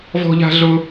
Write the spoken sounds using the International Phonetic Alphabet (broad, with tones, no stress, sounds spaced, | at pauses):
v ɔ̤˥ ʎ a̤˥ ɮ ʊ˥